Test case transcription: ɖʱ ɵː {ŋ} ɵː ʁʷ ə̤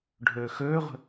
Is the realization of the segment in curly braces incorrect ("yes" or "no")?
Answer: yes